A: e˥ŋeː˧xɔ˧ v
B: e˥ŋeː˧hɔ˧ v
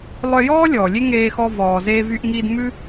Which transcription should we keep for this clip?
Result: A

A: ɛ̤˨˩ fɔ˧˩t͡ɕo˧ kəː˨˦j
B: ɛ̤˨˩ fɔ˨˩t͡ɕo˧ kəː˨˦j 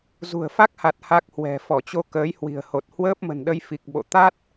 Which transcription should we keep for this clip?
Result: A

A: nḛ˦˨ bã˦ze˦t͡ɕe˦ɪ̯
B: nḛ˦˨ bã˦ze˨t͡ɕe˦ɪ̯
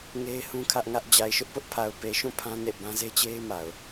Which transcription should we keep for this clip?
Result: A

